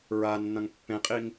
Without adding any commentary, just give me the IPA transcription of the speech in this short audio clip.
ɹanːɐ̃ŋ pːẽqʼiŋ

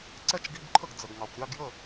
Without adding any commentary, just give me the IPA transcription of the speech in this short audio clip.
ǀɛ˥˧t͡ʃɡi˧˥˧bǃʰə˥˩ɡ d͡zə˩ɡŋɑ˩kʷ ɾʲɑ˥˧ɡjə˥˩

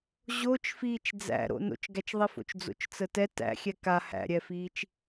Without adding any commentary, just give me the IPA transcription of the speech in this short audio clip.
ʑot͡ʃ fiːt͡ʃd͡zæ̰ɾo̰ no̰t͡ʃɡæt͡ʃðˤifo̰t͡ʃ d͡zo̰t͡ʃt͡sətɛ tæ̰xʲɛ ka hæ̰ɾʲɛfiːt͡ʃ

